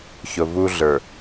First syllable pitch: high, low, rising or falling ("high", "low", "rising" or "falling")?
low